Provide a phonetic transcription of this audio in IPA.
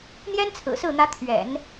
n̪ j ɛ˥ n t͡sʰ ɹ̩˨˩ s ɹ̩˥˩ n̪ ä˧˥ t̪ʰ ɥ ɛ̰˨˩˦ n

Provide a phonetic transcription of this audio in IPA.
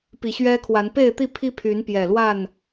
p i˨˩ ɕ ɥ ɛ˦ kʰ w a˨˦ n p e˥˨ ɪ̯ t̪ i˥˨ pʰ i˦ pʰ y˨˦ n p j ɛ˨˩ l w a˥˨ n

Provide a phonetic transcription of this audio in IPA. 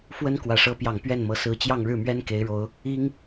f w ə˥ n k w ä˨˩ ʂ ɤ˧˥ p j ɑ˨˩ ŋ p ɥ ɛ˥˩ n m ɤ˧˥ s ɹ̩˧˥ t͡ɕ j ɑ˥˧ ŋ ɻ ɻ̩˥˩ m ɥ ɛ˥ n k e˧˥ ɪ̯ ɻ o˧˥ ʊ̯ | i˥ ŋ

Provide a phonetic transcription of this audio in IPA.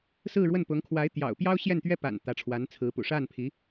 s ɹ̩˥˧ ɻ w ə˥˩ n p ʊ˧˥ ŋ kʰ w a˧˥ ɪ̯ t̪ j ɑ̰˨˩ ʊ̯ p j ɑ˥ ʊ̯ ɕ j ɛ˥˩ n t̪ ɥ ɛ˥ p a̰˨˩ n t̪ ä˧˥ ʈ͡ʂʰ w a˧˥ n t͡sʰ ɹ̩˧˥ p ṵ˨˩ ʂ a˥˩ n pʰ i˧˥

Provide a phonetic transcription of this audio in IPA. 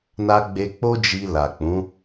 n a˧ ɡ͡b e˧ k͡p o˦ d͡ʒ i˧ l a˨ k͡p ũ˨˦

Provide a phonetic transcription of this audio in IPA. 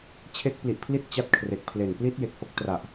t͡ɕʰ e˦˥ k̚ p l i˨˩ ʔ pʰ l i˦˥ t̚ t͡ɕ a˦˥ t̚ kʰ r e˨˩ k̚ pʰ l e˨˩ n p l i˦˥ t̚ j e˨˩ k̚ h o˦˥ k̚ t r a˨˩ ʔ

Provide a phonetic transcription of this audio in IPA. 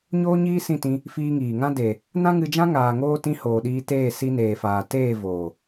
ɲ oː˦ ɲ iː˦ s ĩ˦˨ t ĩ˧ | f iː˧ ŋ iː˨ ŋ ã˦ d e˨ | n ã˦ ŋ ɨ˧ d͡ʒ ã˦ ŋ aː˨ ŋ oː˧ t ĩ˧ h oː˨ ɗ iː˧ t eː˦˨ s i˧ n eː˨ f aː˨ t eː˦˨ v oː˨

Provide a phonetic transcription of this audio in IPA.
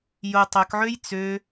j o tˤ œ k ʕ ø j t͡s ø

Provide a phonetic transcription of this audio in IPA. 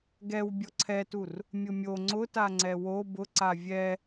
ɡ ɛ w bʲ ɔ ǀʰ ɛ t u r | mʲ ʊ mʲ o ŋ͡ǀ ʊ t a ŋ͡ǀ ɛ w o b ʊ ǀ a vʲ ɛ

